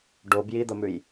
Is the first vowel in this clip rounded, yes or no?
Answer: yes